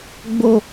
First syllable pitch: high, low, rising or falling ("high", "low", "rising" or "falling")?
low